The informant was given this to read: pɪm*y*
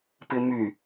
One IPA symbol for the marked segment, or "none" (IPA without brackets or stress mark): y